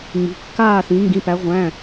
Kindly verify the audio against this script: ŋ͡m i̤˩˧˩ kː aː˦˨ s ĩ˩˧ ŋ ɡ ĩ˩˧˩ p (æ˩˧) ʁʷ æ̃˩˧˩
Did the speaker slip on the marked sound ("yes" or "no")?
no